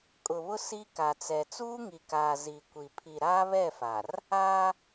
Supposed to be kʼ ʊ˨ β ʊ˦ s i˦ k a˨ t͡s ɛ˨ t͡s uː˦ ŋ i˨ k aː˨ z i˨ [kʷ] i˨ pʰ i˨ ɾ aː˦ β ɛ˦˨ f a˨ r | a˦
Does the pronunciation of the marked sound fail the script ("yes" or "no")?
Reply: no